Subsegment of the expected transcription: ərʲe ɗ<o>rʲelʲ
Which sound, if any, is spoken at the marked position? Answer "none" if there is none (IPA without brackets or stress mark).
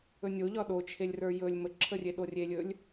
o